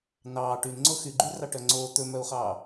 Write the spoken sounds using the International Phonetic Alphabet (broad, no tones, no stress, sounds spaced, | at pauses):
n ɑː ʈ y n ŋ͡ǀ o x y ɡ͡ǃ y r ɑ ʈ œ ŋ͡ǀ oː t̪ ɵ m œ u̯ χ ɑː